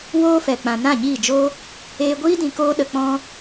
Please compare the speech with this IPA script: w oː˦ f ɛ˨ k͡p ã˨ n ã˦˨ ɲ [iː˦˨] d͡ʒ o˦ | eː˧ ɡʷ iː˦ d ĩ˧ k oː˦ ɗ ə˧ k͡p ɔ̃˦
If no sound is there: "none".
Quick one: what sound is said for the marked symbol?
iː˦˨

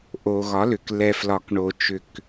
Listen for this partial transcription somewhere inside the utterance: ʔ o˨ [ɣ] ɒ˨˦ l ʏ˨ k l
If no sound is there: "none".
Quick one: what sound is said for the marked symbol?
ɣ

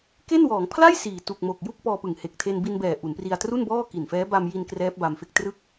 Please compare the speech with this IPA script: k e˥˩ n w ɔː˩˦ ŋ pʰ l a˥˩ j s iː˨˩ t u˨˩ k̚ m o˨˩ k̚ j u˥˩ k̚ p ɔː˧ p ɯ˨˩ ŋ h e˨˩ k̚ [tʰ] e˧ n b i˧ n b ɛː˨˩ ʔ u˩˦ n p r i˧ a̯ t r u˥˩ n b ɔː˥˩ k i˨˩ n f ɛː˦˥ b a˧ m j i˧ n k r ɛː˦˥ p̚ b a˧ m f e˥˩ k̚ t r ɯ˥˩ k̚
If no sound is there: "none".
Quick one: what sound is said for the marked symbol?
tʰ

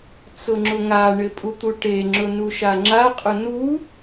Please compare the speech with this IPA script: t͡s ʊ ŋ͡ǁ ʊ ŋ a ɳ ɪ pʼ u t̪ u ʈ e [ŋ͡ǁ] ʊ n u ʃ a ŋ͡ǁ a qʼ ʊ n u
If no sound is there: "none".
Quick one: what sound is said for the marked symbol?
ŋ͡ǁ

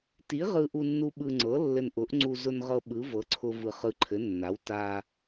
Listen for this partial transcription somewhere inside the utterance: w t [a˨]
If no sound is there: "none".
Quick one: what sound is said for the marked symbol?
a˨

